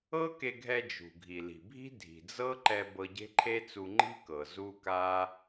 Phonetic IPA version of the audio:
ɤ˥ k e˧ ɡʱ ɛ˧ d͡ʒ ṳ˩ ɡʱ i˩ l i̤˩ bʱ i̤˥ dʱ i̤˩ d͡z ɤ˥ ǃ ɛ˧ b ɤ˧ ɟ e̤˥ ǃʰ e˥ t͡s u˧ ŋ͡ǃ i̤˥ k ɤ˩ z u˥ k a˥

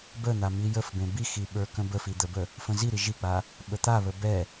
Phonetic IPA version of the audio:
b ə n̪ a m i j ə f b ẽ b i x i ɓ ə˞ k ə̃ b ə f i d̪ ə b ə | f ə̃ z i ɾ i ʒ i k͡p a | ɓ ə t̪ a β ə b ɛ

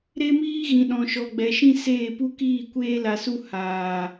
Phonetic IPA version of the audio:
ɾ e˦ m iː˦ ɣ ĩ˨ ɗ ɔ̃˨ ʃ ɔ˨ ɡ͡b ɛ˨ ʃ ĩ˦ s eː˦˨ p u˦ k iː˦˨ kʷ eː˦ l a˧ s u˦ h aː˨

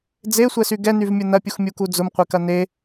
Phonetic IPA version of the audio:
d͡z e sʷ ɛ s y ɡ ɛ n y v mʲ ʊ n ɐ pʲ u x mʲ u k u d͡z ʊ m qʷ e k ɐ n e

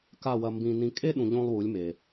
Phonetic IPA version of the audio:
k a˦˨ w ɐ˧ m b ĩ˧ n ĩ˧ kʼ e˦ ɗ ũ˨ ʎ õ˧ lˠ w u˨˦ lʲ m e˨

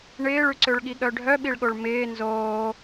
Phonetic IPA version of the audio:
ɳ ɪː ɭ ʉ ǀ ø ɭ ɠ i ɠ œ ɖʱ œ ɓ i ɭ ɠ o ɭ m ɪː n z oː

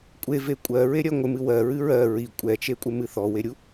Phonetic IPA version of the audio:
kʷʼ e v e kʷʼ ɜ ɹ e ɾʲ ɜ ŋʷ ɪ m ɨ w ɜ ɹ ɨ ɹ ɜ ɹ i kʷʼ ɛ t͡ʃ e kʷʼ ɪ m ɨ θ ɔ w e ɾʲ u

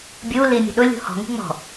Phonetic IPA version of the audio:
bʲ u l i mʲ ə̤ ɗ ʊ lʲ ṳ h ɔ̤ ŋ ṳ ŋ͡m ɔ̤

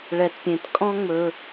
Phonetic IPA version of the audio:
ɭ ɛ˨ t pʲ ẽ˨ t kʼ ɔ̃˦ ŋ͡m ɵ˦

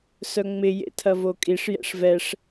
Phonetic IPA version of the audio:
s œ ŋ͡m ɪ j ḛ tʰ ɐ v o kʼ i ʂ j ɛ̰ ʂ v ɛ ʂ

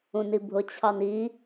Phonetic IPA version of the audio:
ũ n i bʱ ʊ t͡ɕʰ ɑ n i

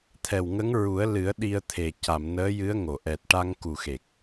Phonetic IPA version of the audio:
t̪ʰ ɛ˨˩ w ŋ ə˧˥ ŋ ɹ u˨˩˦ ə̯ l ɨ˨˩˦ ə̯ ɗ i˧ ə̯ t̪ʰ e˨˩ c a˨˩˨ m n əː˧˥ j ɨ˧˥ ə̯ ŋ o˨˩˨ ʔ ɛ˨˩ t̚ ʈ a˧ ŋ k u˨˩ x e˨˩ k̚

